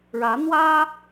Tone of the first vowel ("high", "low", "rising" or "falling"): rising